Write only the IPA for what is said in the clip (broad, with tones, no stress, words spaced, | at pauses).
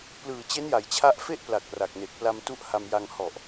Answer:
plɯː˨˩t͡ɕe˦˥nja˩˦j t͡ɕʰa˦˥ʔfe˥˩ʔpla˨˩k̚ ra˨˩k̚ne˨˩k̚pla˧m tu˦˥ʔha˧mja˧ŋ hɔ˨˩ʔ